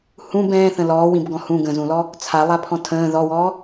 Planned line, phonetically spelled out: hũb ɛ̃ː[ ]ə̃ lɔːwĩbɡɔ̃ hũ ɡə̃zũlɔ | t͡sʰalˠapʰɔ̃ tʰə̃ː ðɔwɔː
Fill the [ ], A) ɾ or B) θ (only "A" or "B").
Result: B